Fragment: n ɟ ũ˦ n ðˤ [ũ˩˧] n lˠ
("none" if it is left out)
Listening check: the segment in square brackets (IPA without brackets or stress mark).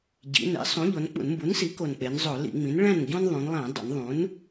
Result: ũ˩˧